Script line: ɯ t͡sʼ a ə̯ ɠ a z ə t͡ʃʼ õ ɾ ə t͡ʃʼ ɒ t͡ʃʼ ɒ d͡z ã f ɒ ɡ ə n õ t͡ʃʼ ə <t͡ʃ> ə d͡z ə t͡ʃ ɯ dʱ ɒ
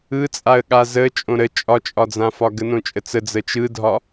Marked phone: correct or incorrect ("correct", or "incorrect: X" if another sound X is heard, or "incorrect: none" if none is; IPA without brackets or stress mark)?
incorrect: t͡s